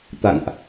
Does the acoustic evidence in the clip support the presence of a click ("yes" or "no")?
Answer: no